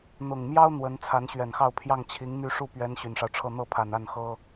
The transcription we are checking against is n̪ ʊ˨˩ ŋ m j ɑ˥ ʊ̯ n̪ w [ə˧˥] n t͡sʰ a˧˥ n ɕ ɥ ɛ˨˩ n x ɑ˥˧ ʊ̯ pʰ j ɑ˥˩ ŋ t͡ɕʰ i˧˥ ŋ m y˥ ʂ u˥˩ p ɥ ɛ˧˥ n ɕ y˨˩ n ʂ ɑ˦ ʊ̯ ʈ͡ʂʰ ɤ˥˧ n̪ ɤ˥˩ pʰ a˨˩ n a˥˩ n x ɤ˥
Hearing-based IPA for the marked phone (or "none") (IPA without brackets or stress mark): ə˧˥